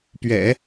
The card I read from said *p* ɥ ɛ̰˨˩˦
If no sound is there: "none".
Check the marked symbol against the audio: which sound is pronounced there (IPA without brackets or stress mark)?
p